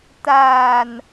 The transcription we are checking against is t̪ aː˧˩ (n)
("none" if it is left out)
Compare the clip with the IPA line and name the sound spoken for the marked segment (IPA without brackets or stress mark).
n